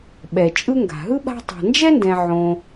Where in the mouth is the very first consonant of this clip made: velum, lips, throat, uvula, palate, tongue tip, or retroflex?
lips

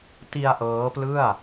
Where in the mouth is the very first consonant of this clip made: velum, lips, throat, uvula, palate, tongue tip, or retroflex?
tongue tip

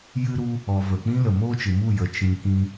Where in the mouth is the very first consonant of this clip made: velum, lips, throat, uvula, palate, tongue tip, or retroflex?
palate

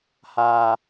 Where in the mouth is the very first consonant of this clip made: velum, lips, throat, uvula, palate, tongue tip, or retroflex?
throat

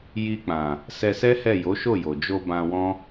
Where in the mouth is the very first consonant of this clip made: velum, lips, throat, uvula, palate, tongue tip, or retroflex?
palate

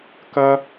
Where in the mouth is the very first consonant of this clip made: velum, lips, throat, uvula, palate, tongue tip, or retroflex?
velum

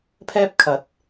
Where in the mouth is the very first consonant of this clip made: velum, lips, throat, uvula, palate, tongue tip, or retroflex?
lips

